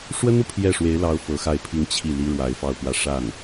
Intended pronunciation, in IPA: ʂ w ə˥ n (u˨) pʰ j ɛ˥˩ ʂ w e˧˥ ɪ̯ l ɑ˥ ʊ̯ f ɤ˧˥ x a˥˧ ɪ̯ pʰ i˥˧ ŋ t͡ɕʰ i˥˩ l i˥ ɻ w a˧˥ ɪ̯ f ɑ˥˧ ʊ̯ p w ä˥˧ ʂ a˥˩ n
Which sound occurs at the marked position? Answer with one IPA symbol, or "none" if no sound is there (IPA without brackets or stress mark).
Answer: u˨